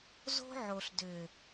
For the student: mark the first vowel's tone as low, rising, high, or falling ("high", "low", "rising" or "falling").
high